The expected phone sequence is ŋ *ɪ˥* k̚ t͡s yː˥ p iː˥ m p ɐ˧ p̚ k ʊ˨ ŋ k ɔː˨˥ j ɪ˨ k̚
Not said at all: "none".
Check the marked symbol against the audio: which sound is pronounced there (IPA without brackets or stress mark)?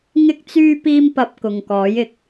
ɪ˥